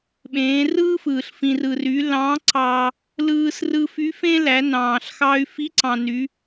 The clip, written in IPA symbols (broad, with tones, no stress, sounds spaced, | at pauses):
ɓ ẽː˩˧ r ɯː˥ f ɯː˩ ɬ f ĩ˩ r ɯ˩ r y˩˧ l ɑ̃˧˥ ǀ ɑ˧ | l ɯː˧ s r ɯ˧ f y˧˥ f ẽ˥ l æ˩˧ n ɑ̃ː˩ ɬ x ɑ˧ y̯ f i˧˥ ǀ ɑ̃˩ n y˩˧